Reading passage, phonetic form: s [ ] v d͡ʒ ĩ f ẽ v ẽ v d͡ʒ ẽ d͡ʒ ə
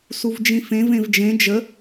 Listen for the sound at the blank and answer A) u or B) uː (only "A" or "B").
A